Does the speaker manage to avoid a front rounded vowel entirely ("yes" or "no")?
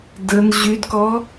no